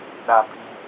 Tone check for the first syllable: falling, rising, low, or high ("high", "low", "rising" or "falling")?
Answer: low